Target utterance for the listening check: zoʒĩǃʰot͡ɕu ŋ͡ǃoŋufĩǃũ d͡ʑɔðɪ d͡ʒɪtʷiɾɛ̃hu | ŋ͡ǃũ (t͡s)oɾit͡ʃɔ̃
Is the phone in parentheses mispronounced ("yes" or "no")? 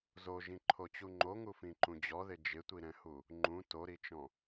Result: yes